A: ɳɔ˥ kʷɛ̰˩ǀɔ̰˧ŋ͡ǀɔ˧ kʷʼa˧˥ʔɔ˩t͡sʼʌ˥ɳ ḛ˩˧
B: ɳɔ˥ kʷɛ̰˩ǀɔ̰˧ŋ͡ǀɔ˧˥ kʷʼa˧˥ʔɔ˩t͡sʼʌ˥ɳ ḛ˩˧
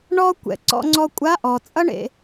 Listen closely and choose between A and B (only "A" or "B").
A